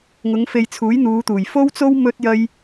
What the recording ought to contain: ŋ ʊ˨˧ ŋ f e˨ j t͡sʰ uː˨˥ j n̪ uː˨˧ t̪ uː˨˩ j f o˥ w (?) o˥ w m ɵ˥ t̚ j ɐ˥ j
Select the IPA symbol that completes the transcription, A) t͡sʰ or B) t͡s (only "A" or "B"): B